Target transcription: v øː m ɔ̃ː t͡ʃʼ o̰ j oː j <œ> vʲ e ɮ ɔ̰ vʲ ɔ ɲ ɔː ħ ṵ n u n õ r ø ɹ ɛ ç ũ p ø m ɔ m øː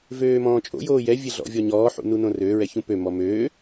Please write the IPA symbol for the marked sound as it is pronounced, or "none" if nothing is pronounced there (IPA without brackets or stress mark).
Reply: ɛ